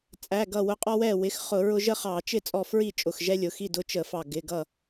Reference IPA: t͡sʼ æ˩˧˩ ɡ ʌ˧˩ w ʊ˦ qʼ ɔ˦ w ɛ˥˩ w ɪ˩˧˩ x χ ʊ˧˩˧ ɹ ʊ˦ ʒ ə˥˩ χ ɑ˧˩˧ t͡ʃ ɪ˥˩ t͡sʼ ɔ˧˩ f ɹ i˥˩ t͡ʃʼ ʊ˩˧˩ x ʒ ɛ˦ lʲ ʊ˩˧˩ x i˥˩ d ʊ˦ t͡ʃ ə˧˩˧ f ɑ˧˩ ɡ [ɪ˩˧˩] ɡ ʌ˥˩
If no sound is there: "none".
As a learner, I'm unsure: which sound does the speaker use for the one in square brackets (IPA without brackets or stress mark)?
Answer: ɪ˩˧˩